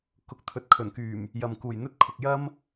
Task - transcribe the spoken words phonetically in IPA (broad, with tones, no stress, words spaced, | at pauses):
kʊ˨˥k̚t̪ʰɵ˨t̚kʰɵ˨˩nkyː˨˩m | jɐ˨mkuː˨˩jn̪ɵ˥t̚kʰʊ˨k̚ jɐ˥m